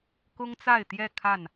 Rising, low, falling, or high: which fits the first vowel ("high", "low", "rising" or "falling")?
high